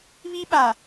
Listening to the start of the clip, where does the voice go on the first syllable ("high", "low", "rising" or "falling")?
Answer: high